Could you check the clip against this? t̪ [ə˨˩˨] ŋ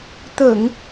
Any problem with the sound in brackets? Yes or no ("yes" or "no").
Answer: no